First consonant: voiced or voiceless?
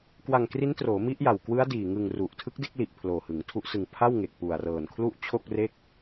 voiceless